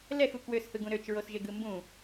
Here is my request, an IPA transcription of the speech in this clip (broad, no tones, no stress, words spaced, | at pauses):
lɛxu kwøshɯɡũ ɾøt͡ʃɹosʒeɡɯ mbũ